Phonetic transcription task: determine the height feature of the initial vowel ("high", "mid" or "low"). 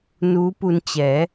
high